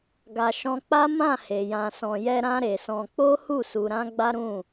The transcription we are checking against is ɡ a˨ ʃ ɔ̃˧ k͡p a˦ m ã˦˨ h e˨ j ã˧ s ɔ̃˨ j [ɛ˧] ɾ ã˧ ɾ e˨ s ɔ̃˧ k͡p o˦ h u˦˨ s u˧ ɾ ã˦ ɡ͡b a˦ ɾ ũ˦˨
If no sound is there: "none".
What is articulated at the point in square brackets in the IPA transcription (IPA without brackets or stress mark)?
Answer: ɛ˧